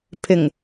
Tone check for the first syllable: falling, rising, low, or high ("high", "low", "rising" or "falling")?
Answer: low